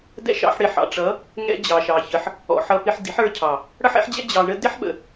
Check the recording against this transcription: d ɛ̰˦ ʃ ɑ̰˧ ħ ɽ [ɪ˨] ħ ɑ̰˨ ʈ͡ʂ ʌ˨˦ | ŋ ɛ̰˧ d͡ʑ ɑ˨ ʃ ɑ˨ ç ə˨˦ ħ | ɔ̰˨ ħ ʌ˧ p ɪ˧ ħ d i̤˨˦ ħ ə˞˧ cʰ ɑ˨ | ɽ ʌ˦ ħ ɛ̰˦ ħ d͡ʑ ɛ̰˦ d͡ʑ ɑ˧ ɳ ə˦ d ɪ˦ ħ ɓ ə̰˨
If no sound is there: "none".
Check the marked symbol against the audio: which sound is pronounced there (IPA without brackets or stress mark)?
ɪ˨